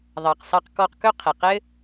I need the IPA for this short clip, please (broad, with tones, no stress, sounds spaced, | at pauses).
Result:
ðˤ ɑ˨ q s ɑ˧ q k ɔ˧ q k ɵ˦ qʰ e˨ q ɘ˦